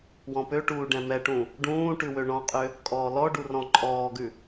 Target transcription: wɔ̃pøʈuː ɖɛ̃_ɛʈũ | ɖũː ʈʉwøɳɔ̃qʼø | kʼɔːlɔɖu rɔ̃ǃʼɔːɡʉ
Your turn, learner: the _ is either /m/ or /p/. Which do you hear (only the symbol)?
m